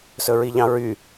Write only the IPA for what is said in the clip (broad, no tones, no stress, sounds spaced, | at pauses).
s ɵ ɹ i ʎ ɑ̃ ɹ y